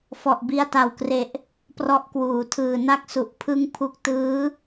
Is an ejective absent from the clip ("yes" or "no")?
yes